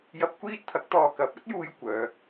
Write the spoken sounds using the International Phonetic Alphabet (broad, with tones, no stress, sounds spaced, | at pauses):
j ɐ˧ p̚ kʷ iː˥ t̚ t̪ʰ ɐ˨˥ k̚ t̪ ɔː˨ k ɐ˨˥ p̚ ɐ˥ t̚ j uː˧ j kʷ œː˨˧